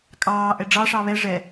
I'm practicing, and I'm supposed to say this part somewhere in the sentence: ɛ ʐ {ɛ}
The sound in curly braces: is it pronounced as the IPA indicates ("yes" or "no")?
yes